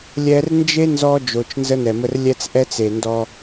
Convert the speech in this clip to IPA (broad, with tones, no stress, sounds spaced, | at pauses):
lʲ ɛ˦ r n d͡ʒ e˦ n z ɔ˦ d͡ʒ o˨ t͡ʃ n z ə˦ n ɛ˨ m ə˦ r lʲ ɛ˦ t͡s ʔ ɛ˦ t͡s e˨ n d ɔ˦